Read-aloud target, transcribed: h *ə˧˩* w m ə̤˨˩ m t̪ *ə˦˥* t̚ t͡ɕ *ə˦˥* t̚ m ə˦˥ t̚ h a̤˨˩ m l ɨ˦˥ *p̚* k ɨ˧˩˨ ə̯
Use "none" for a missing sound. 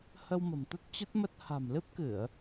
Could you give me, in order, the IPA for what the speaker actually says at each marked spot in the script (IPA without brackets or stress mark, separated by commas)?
ə˧, ə˦˥, ə˦˥, p̚